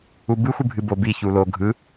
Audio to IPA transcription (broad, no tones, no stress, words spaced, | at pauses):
ubɨ xʷɨbʱɨbo bi çulo ɡʱɯ